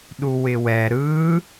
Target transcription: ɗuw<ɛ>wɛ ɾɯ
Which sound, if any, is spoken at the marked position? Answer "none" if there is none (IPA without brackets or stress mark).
ɪ